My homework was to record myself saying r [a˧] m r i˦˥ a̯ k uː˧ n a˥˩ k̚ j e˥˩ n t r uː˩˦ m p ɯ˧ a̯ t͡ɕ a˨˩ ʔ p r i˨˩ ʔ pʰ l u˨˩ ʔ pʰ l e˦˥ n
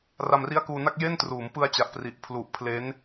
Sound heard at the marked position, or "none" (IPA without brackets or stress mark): a˧